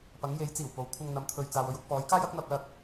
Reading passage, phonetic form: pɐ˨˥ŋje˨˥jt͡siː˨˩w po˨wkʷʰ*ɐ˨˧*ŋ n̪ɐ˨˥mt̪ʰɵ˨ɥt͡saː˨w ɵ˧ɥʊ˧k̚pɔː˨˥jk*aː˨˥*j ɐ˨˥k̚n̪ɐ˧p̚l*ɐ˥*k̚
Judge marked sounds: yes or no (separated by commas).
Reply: no, no, no